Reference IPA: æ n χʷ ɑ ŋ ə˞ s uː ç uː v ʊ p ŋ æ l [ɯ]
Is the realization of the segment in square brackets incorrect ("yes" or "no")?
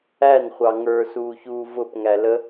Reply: yes